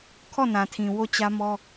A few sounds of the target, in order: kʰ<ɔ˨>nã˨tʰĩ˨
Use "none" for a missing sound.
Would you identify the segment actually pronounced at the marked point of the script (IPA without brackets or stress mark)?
ɔ˦˨